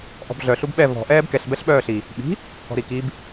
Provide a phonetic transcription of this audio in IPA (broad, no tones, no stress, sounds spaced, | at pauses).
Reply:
ʔ ɔ̤ b ɮ œ ɬ u b ɓ ɛ v ɔ̤ ʔ ɛː b k ɛ ɬ b ɛ ɬ ɓ œː ɬ i | ɓ i̤ | k ɔ̤ ɾ i k i b